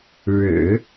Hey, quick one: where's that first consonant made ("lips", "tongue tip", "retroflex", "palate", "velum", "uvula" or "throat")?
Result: retroflex